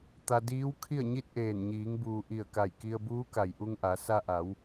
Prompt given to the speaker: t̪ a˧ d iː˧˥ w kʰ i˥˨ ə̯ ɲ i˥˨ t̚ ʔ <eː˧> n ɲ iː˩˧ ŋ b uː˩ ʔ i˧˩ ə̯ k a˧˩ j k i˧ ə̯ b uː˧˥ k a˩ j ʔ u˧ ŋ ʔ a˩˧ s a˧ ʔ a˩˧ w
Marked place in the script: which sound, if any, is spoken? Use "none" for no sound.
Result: eː˧˩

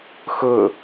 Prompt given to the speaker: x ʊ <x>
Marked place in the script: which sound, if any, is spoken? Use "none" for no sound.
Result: none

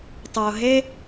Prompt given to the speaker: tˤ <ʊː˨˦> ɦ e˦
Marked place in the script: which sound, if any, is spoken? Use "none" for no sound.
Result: ʊː˨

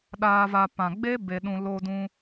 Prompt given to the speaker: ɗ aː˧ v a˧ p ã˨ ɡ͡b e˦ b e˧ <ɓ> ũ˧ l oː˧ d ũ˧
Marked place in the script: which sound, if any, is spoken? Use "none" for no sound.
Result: ɗ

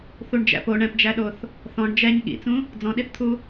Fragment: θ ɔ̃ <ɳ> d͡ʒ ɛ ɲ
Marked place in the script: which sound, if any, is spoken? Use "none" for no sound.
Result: ɳ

